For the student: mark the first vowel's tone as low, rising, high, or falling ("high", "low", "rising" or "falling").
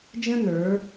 high